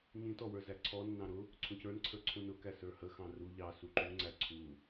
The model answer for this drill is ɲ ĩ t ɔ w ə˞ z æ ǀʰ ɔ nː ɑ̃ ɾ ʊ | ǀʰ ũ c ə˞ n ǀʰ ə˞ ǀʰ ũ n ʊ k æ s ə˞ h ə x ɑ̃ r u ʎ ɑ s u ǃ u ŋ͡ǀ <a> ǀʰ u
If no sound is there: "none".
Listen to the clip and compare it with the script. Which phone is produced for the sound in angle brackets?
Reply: æ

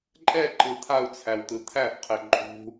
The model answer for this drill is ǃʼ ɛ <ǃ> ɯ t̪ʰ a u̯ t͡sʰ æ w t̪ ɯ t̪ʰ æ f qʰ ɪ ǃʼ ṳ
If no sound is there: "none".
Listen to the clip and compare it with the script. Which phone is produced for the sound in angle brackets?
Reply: ǃ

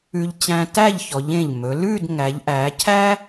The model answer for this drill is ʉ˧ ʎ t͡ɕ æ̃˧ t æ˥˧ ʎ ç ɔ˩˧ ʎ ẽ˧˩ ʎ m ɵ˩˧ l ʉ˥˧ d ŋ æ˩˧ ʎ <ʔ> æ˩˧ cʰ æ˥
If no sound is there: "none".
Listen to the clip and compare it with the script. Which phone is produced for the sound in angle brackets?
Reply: ʔ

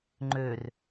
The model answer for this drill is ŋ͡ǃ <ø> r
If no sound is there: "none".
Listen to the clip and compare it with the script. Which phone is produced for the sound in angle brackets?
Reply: ø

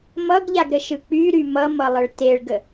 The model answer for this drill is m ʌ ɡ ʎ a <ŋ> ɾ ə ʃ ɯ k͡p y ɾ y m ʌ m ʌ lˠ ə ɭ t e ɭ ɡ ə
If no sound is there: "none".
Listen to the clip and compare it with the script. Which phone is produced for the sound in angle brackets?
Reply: ɡ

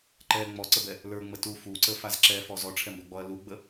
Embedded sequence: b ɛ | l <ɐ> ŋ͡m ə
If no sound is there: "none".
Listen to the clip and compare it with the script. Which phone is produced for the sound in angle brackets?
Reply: ə˞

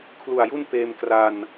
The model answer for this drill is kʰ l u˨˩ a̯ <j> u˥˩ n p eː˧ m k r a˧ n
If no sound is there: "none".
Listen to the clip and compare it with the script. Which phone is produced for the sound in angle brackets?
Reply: j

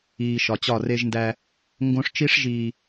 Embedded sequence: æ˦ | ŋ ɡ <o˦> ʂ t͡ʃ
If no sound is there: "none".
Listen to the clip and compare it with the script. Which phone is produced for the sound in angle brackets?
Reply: õ˦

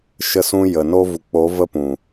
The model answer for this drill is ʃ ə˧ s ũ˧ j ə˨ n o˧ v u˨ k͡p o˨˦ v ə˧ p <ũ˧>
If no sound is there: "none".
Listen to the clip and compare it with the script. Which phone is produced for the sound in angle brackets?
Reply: ũ˨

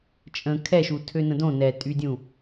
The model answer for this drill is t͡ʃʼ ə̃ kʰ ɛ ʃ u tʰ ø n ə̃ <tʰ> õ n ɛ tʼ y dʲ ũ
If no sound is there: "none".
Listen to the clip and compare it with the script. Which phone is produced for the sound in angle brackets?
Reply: d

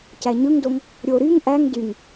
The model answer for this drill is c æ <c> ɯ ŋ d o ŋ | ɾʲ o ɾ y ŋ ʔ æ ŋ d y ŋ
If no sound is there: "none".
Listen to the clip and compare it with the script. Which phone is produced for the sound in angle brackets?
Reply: ɲ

